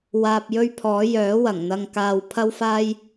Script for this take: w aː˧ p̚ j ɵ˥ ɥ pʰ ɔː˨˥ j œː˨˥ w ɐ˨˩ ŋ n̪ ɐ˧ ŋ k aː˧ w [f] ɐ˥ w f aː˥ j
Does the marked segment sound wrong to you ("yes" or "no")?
yes